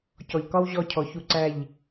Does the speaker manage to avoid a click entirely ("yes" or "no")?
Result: no